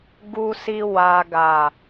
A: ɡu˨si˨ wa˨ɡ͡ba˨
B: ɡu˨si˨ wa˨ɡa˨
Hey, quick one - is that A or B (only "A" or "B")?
B